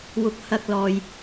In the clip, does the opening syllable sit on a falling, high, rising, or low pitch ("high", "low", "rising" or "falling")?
low